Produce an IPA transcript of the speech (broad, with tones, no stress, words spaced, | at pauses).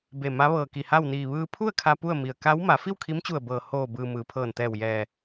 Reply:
be˧˩ma˧˥ ʋɤː˧˩ki˧˩ ha˥˨wniː˧˩ ʋɯː˧pʰu˥˨ə̯ kʰa˧ pu˥˨ə̯mi˩ə̯ ka˧˥w ma˩˧fi˥˨wkʰi˧˥mt͡ɕu˧˩ə̯ bɤː˧˩ hoː˧˩bɯː˩ mɯː˩˧pʰɤː˧˩nt̪ɛː˧˩w jɛː˧˩